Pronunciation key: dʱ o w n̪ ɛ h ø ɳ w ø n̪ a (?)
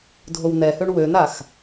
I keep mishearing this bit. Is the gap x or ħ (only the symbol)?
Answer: x